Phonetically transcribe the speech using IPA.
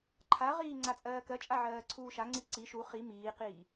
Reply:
ǃʰ a ʁ iː ŋ͡ǀ a t͡sʼ ɜː k ɜ t͡ʃʼ a ʕ ɜː ǀʰ uː ʃ a ŋ͡ǀ i ǀ i ʃ u χ i m iː q iː

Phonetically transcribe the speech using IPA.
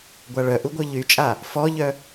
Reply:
ɡʷ a ɭ œ ʔ u ɡʷ œ ʎ y t͡ʃʼ a | f ɔ ʎ œ

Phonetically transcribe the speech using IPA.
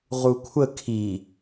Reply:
ʁ u kʷʰ ə kʰ i

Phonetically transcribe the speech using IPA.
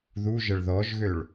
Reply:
ð u ʒ ə ɭ ð ɔ ʒ ɣ ø ɭ

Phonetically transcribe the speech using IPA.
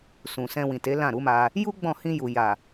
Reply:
s ũ˨ s ɛ̃˧ w ĩ˨ t e˨˦ l ã˦˨ ɾ u˨˦ m a˧ | j u˦ ɡ͡b ɔ̃˦˨ h ĩ˧ j u˨ j a˨

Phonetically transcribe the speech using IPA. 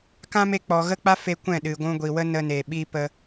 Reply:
k ã˦ m e˧ k͡p ɔ˨ ɣ ə˦ k͡p a˦ f e˧ kʷ ɛ̃˦˨ ɗ ɨ˨ ɡʷ ũ˧ ɡʷ i˨ w ə˦ n ə˧ n e˨ ɓ i˦ p ə˧

